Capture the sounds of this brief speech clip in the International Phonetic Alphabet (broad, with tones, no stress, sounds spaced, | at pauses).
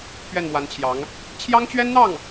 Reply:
p ɥ ɛ˥˩ n m w a˧˥ n t͡ɕʰ j ɑ˧˥ ŋ | t͡ɕʰ j ɑ˥ ŋ t͡ɕ ɥ ɛ˥ n n̪ ɑ˥˩ ŋ